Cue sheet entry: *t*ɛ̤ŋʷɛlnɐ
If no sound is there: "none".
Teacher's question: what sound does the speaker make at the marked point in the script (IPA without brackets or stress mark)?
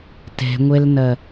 t